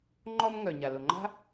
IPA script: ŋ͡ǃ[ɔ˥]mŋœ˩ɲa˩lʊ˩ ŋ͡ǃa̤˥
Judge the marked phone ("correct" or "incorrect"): correct